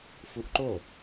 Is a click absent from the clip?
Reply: no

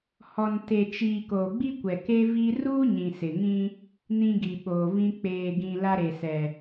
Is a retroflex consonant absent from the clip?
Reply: yes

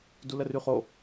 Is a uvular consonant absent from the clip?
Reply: no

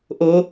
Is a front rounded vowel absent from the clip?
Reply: yes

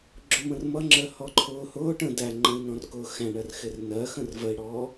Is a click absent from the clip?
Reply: no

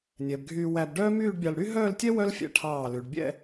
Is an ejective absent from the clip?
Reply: yes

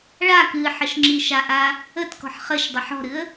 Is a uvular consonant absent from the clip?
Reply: no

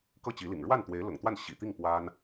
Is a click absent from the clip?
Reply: yes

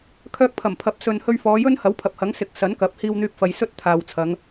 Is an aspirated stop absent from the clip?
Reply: no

